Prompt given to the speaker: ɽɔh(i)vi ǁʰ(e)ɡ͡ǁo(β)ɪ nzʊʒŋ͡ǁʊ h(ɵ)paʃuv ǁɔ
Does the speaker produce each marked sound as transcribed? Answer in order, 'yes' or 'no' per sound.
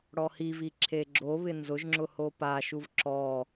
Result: yes, yes, yes, no

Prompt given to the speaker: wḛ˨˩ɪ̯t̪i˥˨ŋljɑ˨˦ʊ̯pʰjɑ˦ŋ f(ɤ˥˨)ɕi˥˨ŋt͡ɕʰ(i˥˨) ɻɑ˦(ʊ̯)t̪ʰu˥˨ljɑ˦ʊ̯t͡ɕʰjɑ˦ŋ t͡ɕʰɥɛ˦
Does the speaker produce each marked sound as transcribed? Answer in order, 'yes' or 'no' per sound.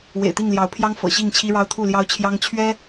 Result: no, no, yes

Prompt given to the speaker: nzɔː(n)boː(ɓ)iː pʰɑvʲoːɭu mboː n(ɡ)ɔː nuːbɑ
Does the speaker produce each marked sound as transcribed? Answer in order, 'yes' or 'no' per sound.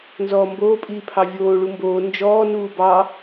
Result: no, no, no

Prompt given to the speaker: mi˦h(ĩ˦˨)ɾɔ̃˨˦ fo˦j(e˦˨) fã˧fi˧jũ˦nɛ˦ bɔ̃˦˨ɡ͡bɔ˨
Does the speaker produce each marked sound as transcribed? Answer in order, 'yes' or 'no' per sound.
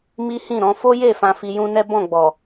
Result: yes, yes

